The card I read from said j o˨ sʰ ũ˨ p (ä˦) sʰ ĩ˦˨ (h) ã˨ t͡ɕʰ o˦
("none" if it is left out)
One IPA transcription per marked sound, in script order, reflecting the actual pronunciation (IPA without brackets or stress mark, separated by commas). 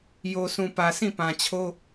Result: ä˨, p